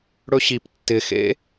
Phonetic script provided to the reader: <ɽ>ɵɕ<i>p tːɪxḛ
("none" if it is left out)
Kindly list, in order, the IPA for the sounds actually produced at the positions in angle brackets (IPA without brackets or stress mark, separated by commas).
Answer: ɽ, i